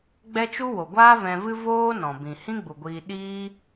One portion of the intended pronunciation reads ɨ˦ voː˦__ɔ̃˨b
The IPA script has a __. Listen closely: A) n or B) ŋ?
A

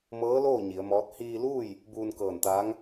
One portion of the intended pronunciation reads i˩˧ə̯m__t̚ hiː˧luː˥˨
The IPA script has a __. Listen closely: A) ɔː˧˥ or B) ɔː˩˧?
A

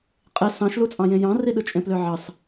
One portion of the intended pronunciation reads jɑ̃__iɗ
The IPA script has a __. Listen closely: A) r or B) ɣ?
A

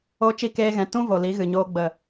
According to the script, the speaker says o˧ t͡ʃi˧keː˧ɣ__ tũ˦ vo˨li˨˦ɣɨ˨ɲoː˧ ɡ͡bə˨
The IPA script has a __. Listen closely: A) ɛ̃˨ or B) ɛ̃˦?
A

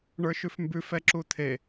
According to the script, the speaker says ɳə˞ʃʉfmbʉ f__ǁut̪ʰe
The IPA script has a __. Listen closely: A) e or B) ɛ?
B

